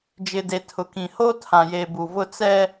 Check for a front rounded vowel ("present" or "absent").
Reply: absent